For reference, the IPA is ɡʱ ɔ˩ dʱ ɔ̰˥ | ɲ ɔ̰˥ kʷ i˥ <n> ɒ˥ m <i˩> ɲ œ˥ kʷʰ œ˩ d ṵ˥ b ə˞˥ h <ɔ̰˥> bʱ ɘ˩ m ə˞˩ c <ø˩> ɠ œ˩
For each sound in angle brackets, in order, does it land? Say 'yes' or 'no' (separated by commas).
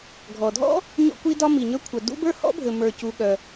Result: no, yes, yes, no